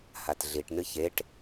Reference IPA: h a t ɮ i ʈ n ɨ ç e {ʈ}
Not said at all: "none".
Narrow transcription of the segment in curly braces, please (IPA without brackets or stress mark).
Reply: ʈ